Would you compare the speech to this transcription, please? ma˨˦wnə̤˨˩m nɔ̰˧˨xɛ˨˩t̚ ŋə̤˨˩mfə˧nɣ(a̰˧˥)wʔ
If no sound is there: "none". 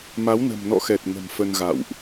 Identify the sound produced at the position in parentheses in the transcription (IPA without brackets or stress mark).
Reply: a̰˧˨